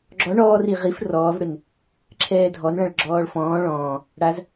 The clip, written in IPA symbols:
ɡ͡ǁ ɔ ɳ ɔː r i ʁ i f r ɔː v ɽ ɪ n | ǁʰ ɛː dʱ ɔ n ɭ ã ɭ ɡ͡ǁ ɔː ɭ f ɔ̃ː ɭ ɔ̃ː | ɽ a z

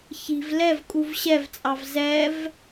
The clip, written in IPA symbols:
ç i̤ v l ɛ v kʼ u v ɕ ɛ v t͡sʼ ɑ v z ɛ v

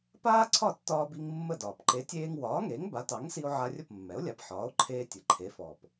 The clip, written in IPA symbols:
p aː˥ ǀʰ ɒ˥˩ tː ɒː˧ b i˧ ŋ mː ə˥˩ d ɒː˩ p ǃ e˩˥ tʲ eː˧ ŋ w ɒː˩˥ ŋ e˩˥ ŋ b a˩˥ t ɑ˩˥ ŋ s i˧ o̯ ʕ a˧ rʲ ə˥˩ p mː ɛ˩˥ o̯ lʲ a˩˥ p ħ ɒː˩˥ o̯ ǃʰ eː˧ tʲ ə˩ ǃʰ e˩˥ f ɔ˩ p

